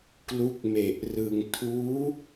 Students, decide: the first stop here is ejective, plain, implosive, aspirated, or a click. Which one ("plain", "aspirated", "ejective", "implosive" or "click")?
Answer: plain